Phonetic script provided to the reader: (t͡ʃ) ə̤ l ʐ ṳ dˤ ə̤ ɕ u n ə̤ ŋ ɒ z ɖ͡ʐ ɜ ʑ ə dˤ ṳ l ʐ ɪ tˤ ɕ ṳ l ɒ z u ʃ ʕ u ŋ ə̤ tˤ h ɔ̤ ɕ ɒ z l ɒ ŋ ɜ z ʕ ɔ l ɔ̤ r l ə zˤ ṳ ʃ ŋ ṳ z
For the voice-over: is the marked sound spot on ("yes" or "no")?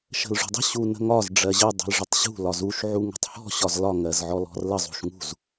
no